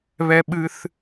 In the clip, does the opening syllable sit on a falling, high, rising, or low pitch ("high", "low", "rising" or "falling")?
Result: high